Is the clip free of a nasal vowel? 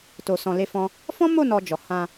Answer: no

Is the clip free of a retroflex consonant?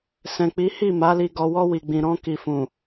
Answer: yes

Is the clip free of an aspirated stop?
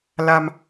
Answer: yes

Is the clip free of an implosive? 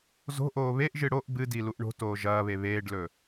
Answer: yes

